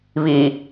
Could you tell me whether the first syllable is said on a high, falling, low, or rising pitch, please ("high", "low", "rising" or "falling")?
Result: low